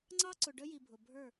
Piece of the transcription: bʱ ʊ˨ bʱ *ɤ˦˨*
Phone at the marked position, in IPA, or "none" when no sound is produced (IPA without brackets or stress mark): ə˞˦˨